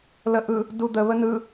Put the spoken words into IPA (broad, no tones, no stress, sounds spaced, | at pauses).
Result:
l ə ʔ ɯ | d u d̪ ə β ə n ɯ